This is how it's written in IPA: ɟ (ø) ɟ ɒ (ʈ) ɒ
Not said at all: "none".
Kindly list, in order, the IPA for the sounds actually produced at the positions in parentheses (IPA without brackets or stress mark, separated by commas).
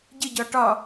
ə, ʈ